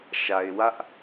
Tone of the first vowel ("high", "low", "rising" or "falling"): low